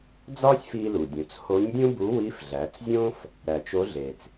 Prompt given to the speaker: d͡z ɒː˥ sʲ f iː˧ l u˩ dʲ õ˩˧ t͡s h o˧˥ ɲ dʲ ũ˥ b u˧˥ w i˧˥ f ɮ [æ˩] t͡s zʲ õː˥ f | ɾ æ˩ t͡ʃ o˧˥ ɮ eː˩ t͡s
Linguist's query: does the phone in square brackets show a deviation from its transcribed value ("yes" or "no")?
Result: yes